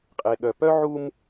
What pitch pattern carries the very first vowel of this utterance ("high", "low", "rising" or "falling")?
low